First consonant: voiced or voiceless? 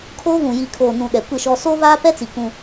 voiceless